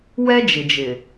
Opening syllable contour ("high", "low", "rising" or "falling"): high